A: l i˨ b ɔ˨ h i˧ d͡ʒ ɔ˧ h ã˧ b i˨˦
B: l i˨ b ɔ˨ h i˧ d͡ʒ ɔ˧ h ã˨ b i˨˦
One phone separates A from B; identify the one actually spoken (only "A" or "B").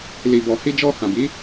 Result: B